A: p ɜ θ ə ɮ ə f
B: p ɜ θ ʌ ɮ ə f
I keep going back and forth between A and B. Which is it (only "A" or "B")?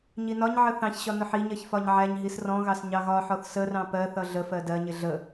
B